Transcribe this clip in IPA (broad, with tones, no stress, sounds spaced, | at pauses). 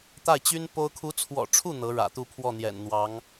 t̪ a˥˩ ɪ̯ t͡ɕ y˥ n p o˥ ʊ̯ kʰ u˧˥ t͡sʰ w ɔ̰˨˩ ʈ͡ʂʰ u˥˩ n̪ ɤ˧˥ ɻ ä̰˨˩ t̪ u˥˧ pʰ w ɔ˥˩ n̪ j ɛ̰˨˩ n n̪ w ɑ˧˥ ŋ